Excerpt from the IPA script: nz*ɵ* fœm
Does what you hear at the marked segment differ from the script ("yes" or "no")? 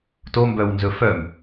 no